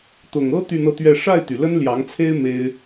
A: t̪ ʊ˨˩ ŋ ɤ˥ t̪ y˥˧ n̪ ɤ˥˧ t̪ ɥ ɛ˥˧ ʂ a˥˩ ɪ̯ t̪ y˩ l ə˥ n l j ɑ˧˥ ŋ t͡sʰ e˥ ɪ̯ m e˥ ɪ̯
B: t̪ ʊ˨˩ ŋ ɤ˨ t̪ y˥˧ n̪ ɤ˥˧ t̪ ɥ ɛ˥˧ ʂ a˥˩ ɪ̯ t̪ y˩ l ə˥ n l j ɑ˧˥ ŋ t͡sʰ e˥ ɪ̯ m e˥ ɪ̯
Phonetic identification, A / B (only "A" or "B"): A